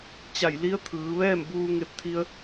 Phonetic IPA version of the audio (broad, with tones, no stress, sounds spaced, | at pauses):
t͡ɕ a˧˩ j l i˧˥ ə̯ t̪ʰ ɯː˩˧ ʋ ɛː˥˨ m b uː˧ ŋ e˧ p̚ t̪ʰ i˧ ə̯